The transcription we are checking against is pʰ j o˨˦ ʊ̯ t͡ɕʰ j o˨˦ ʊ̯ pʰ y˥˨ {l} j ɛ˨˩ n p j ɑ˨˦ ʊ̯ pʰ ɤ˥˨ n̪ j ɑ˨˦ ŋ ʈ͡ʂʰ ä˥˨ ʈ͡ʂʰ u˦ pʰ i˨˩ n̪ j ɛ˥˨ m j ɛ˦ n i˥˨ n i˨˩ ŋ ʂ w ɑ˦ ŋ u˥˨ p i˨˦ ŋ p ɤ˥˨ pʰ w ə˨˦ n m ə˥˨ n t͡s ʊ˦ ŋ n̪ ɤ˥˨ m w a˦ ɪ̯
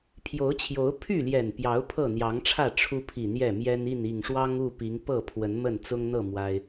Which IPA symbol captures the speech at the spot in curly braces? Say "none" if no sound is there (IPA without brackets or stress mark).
l